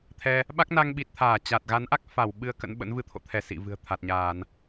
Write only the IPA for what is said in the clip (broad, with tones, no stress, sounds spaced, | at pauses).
t̪ʰ ɛ˧ | ɓ a˦˥ k̚ n a˧ ŋ ɓ i˨˩ t̚ t̪ʰ aː˧˩ t͡ɕ a˨˩ t̚ ɣ a˨˦ n ʔ a˦˥ k̚ f a˧˩ w ɓ ɨ˨˦ ə̯ k ə̰˧˥ n ɓ ə̰˧˥ n v ɨ˧ t̪ʰ o̰˧˨ t̪ʰ ɛ˧˩ s ḭ˧˨ v ɨ̤˨˩ ə̯ t̪ʰ a˨˩ t̚ ɲ aː˧˩˨ n